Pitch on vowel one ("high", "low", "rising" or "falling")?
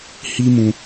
high